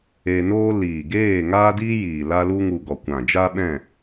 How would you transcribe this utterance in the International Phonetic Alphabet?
e˧ n oː˦ l iː˨ ɡ eː˦˨ ŋ aː˦ d iː˦ j iː˨ l a˧ l u˧ ŋ u˨ ɡ ɔ˨ kʷ ã˨ d͡ʒ a˦ ɓ ɛ̃˦˨

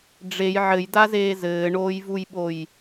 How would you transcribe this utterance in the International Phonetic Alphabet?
ɖ͡ʐ e j ʕ ɘ j d a z eː z ɘː ɳ oː j v u j ɓ o j

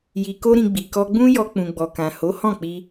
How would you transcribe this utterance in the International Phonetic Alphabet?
j i˧ k o˦ ɾ ĩ˧ ɡ͡b i˨ k ɔ˧ ɡ͡b ũ˦ j ɔ˧ k͡p ũ˨ ɡ͡b ɔ˨ k ã˨ h o˨˦ h ɔ̃˦˨ k͡p i˧

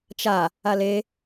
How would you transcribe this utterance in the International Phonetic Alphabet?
t͡ʃ a | a l e

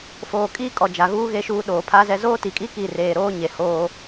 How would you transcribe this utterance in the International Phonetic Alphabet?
f oː˨ kʼ iː˦ kʼ ɔ˨ d͡ʒ a˨ ɣ uː˦ ɣ e˦ ʃ uː˦ ɗ oː˨ pʰ a˦ z ɛ˦ z oː˦ t i˨ kʼ i˦ k i˦˨ r eː˨ ɾ oː˦ ɲ e˨ h oː˦

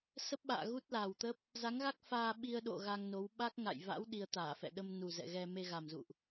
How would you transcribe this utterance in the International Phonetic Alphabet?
s ə˦˥ p̚ ɓ a̰ː˧˨ ɣ u˦˥ t̚ l aː˨˩ w t̪ ə˦˥ p̚ | z a˨˦ ŋ ɣ a˦˥ k̚ f aː˧ ɓ i˧ ə̯ ɗ o̰˧˨ ɣ a˧ ŋ n o˨˦ w ɓ a˦˥ k̚ ŋ a̰˧˨ j v a̰˧˥ w ɗ i˧ ə̯ t̪ aː˧˩ f ɛ̰˧˨ ɗ ə˧ m n u˨˩ z ɛ̰˧˨ ɣ ɛ˧ m e˧ ɣ a˨˩ m z ṵ˧˨ ʔ

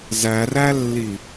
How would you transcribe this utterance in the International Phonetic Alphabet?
z æ r æ lː i

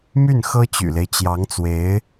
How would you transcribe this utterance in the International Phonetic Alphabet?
m y˥˩ n x ɤ˥ t͡ɕ y̰˨˩ l e˦ ɪ̯ t͡ɕ j ɑ˧˥ ŋ t͡s w e˧˥ ɪ̯

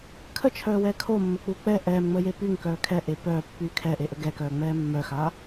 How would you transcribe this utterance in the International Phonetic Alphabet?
kʰ ə t͡ʃʰ œː w ɛː kʰ o mː ə k͡p u k͡p ɛ ʔ ɛː m ŋ͡m əː j e p y ŋ k œː kʰ ɛ ʔ e p œː pː y kʰ ɛ ʔ e ʔ ə ɡ ɛ k œː ŋ͡m ɛː mː œ x a

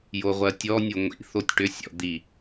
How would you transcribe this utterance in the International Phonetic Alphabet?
j o ʁʷ ɜ tʲ ɔ nʲ o ŋʷ ḭ θ o tʲ ʈ ʏ sʲ ɔ̰ d̪ i

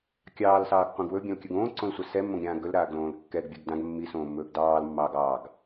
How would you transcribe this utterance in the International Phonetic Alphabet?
kʲ ɑː l s ɑː ɡ qʷ ã ɡ w ɵ bʲ ã l kʲ ɵ ɡ õː ǀ õ l sʷ a s ɛ mː õ ɡ ɾʲ ãː ɡ ɵ l ɾ aː ɡ l õː l kː ɛ ɡ bʲ a ɡ d ã ɡ mː i s õː mː ɵː ɡ d ɑː l mː ɑː ɡ ɑː ɡ

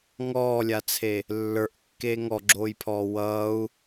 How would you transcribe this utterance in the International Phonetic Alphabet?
ŋ ɔː lʲ a t͡sʰ e | lː ə˞ ʔ kː eː ŋ ɔ ɡ͡ǁ oː j pʰ ɔː w ʌː u̯

